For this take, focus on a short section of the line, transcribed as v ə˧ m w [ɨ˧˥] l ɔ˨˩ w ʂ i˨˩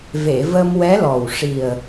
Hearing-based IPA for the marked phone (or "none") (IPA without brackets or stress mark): ɛ˧˥